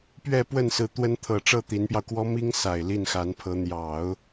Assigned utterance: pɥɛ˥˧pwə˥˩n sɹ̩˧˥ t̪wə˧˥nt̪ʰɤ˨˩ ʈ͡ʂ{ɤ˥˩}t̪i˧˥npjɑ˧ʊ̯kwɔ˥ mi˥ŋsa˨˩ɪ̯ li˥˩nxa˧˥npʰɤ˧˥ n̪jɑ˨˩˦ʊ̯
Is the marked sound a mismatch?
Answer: no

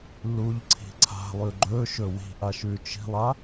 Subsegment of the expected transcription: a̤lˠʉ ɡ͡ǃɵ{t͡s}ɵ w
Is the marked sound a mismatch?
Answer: yes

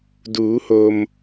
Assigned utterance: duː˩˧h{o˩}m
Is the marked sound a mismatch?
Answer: no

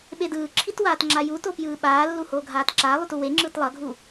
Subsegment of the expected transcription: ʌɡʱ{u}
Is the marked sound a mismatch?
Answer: no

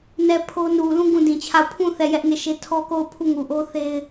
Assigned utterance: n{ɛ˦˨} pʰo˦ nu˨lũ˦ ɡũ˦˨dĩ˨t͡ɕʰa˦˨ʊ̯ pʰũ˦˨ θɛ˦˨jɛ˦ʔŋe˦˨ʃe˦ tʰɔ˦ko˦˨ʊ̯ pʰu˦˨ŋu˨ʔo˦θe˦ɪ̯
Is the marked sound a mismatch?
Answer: no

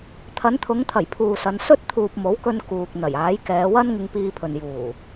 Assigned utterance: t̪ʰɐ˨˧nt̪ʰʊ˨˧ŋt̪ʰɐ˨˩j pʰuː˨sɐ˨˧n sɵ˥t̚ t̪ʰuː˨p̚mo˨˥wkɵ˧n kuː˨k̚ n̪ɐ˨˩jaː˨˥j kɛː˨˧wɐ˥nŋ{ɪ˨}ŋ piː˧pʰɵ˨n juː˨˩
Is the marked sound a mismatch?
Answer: yes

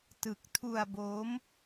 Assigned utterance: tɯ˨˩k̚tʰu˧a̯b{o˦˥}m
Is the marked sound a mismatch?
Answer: no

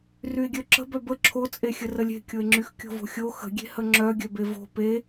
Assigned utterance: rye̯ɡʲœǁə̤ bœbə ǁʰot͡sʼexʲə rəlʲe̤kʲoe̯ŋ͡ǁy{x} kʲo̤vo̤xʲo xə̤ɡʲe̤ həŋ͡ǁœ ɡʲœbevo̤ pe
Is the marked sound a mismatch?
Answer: no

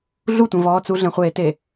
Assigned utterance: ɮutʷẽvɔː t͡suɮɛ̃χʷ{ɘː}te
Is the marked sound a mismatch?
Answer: yes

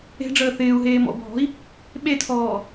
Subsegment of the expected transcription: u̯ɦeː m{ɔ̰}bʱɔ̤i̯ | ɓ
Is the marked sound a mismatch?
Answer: no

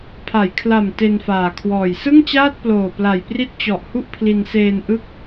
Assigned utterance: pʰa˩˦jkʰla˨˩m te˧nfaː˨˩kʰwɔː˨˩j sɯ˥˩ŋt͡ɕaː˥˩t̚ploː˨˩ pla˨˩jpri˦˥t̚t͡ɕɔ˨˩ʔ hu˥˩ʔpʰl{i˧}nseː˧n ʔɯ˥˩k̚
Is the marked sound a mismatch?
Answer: no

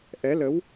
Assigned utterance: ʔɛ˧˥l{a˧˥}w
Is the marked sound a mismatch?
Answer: yes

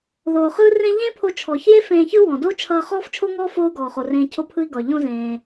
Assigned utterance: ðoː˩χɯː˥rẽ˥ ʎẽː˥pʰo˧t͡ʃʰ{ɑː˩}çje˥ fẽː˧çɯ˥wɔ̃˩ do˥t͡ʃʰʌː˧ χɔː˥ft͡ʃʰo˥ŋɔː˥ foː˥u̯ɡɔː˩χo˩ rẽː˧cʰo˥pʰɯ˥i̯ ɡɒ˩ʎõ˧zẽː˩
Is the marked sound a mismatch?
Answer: yes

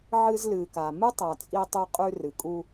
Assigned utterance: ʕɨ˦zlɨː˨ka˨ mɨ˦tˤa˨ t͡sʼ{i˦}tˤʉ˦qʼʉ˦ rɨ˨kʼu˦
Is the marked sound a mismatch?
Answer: no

